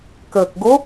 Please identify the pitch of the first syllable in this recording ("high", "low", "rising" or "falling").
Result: low